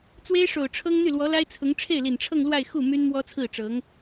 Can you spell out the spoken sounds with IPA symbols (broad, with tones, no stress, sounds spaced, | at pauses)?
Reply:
t͡s w e˥ ɪ̯ ʂ o˨˩ ʊ̯ ʈ͡ʂʰ ɤ˥ ŋ n̪ y˥˩ l w ɔ˧˥ l a˥ ɪ̯ t͡sʰ ʊ˧˥ ŋ ʈ͡ʂʰ e˥˩ ɪ̯ l i˨˩ n ʈ͡ʂʰ ɤ˥˧ ŋ l w a˥˧ ɪ̯ x u˥˩ m y˥ n m w ɔ˥ t͡sʰ ɹ̩˥˩ ʈ͡ʂ ɤ˧˥ ŋ